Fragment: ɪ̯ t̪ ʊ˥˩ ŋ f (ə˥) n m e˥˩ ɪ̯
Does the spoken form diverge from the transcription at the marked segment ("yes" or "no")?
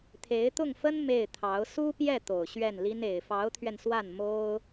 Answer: no